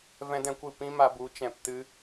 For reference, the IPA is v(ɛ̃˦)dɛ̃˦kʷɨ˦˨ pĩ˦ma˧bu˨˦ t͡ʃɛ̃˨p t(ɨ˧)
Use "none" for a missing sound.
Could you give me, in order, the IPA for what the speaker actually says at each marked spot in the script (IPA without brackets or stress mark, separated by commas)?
ɛ̃˦, ɨ˧